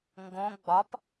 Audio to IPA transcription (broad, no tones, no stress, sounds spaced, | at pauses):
ŋ ɡ õ ɡ͡b ɒ p